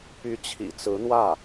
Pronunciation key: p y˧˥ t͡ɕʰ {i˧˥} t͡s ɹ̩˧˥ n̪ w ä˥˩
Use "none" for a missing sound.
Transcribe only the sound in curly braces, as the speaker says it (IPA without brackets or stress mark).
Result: ḭ˨˩